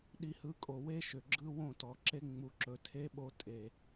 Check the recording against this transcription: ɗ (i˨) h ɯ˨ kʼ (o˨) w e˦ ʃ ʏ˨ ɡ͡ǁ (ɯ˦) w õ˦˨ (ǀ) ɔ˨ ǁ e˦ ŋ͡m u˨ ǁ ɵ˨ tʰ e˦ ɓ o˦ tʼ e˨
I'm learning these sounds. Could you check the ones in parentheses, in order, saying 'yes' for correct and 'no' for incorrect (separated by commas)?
yes, yes, yes, no